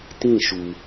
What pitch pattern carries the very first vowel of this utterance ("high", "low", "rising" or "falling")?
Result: falling